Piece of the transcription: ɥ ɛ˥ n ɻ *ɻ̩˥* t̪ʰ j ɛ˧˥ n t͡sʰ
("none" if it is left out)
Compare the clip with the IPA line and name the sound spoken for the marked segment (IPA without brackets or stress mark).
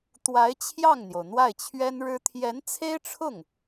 ɻ̩˥